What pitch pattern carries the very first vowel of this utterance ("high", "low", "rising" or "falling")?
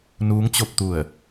rising